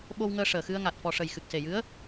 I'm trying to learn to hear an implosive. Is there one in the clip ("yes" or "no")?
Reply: yes